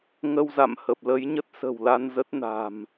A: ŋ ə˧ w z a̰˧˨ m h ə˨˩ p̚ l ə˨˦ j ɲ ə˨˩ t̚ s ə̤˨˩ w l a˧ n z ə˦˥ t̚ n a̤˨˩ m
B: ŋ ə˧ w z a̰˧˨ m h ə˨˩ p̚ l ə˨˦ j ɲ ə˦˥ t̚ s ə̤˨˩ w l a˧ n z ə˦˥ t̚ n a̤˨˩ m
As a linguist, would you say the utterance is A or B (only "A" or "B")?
B